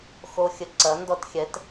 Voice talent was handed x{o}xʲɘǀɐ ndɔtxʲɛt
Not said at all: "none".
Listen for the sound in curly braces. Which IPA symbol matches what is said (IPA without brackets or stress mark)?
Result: o